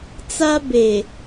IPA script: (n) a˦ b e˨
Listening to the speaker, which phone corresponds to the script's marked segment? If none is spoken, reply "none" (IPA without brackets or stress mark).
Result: t͡s